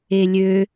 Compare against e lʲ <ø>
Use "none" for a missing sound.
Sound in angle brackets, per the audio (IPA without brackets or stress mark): ø